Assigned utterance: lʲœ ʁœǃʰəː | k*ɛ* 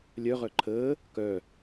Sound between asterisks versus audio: incorrect: œ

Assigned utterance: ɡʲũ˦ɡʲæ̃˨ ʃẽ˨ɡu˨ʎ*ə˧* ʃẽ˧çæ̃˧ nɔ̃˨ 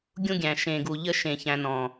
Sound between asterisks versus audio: incorrect: ə˦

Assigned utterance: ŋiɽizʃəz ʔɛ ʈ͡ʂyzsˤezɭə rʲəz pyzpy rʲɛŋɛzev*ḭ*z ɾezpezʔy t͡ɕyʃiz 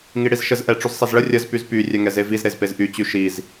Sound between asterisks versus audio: incorrect: i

